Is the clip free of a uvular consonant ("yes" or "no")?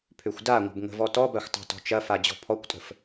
yes